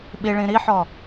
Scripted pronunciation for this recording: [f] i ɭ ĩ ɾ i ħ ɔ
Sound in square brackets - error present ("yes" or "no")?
yes